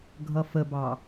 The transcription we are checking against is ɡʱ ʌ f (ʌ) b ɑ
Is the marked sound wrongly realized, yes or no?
yes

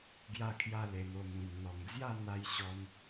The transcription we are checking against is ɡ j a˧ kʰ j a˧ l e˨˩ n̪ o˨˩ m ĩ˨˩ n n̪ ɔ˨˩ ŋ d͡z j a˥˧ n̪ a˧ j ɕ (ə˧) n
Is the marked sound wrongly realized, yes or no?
yes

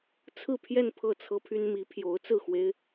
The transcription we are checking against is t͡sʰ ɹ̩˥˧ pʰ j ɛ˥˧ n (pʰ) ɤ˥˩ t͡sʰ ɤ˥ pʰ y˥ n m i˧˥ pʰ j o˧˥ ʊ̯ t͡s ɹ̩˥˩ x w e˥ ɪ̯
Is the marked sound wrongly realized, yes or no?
no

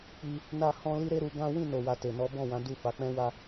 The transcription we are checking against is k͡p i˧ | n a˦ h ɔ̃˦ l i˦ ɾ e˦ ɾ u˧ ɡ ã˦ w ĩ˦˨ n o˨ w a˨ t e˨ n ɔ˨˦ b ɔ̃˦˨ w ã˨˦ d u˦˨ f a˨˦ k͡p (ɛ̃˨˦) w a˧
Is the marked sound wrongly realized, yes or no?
yes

